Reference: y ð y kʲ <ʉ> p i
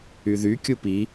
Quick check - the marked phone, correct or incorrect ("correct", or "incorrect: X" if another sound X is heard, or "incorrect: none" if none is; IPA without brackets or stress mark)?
incorrect: u